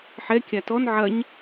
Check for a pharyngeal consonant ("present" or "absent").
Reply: present